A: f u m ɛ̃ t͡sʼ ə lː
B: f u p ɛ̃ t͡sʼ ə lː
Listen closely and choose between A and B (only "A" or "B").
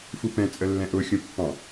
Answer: B